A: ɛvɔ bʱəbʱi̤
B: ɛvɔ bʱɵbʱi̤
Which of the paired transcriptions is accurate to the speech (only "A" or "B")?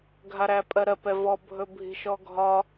B